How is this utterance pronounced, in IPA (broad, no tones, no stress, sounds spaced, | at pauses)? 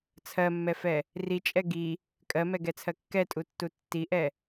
t͡sʰ ɜ mː ɛ f ɛ | r i t͡ʃʼ ɛ ɡ i | kʼ ɜ m ɛ ɡ ɛ t͡sʰ ɜ kː ɛ tʼ u tː u tː i ʔ ɛ